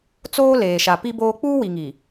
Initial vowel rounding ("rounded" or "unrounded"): rounded